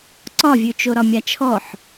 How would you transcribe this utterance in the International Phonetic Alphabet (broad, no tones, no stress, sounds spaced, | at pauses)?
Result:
ǀ ɒ vʲ ʉ t͡ʃ o ɾ ɒ mʲ a t͡ʃʰ ɔ ħ